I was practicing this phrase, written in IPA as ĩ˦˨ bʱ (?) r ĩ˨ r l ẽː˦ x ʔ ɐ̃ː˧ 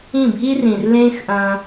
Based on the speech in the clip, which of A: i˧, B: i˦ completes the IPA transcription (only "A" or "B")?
B